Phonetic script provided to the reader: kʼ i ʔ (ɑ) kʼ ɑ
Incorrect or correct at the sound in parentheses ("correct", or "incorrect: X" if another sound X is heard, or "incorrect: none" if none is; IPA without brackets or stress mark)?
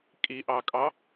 correct